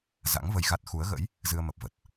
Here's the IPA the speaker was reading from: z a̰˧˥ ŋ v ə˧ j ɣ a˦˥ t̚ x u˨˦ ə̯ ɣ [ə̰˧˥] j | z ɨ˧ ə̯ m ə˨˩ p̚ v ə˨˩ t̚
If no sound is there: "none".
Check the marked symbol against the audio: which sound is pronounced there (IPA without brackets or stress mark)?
ə̰˧˥